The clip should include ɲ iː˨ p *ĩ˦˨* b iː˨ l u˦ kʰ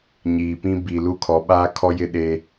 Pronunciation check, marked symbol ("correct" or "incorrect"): incorrect